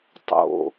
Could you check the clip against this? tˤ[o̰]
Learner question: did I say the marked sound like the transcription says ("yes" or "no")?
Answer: yes